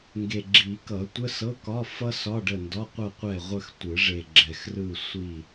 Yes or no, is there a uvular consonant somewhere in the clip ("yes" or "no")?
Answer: yes